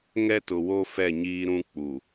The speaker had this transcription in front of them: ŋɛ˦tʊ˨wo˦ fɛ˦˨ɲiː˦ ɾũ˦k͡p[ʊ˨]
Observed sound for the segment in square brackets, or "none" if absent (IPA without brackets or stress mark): u˨